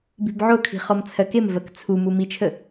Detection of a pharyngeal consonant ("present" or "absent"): present